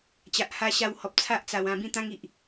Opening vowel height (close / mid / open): open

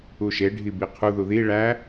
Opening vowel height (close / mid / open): close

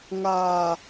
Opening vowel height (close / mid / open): open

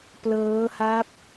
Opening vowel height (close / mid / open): mid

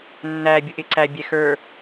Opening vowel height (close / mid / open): open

